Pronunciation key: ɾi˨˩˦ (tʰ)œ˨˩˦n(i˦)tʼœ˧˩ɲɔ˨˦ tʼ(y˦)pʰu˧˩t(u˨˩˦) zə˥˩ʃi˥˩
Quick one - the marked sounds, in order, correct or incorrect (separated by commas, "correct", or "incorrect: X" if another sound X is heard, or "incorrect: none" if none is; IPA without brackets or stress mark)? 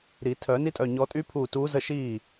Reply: correct, correct, correct, incorrect: u˨˦